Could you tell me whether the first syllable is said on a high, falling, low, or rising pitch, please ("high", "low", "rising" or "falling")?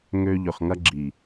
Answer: high